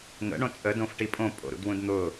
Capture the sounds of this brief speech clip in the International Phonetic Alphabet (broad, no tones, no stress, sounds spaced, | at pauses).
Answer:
ŋ ə̰ ɳ õ t͡sʼ ə d õ f ʈ i pʼ õ pʼ o̰ ɾ ṵ d w ũ d n̪ ʊ